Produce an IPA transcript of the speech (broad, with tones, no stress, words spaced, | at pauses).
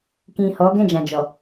kĩ˨ hɔ˨˦ ɡɛ̃˦˨d͡ʒã˨d͡ʒɔ˨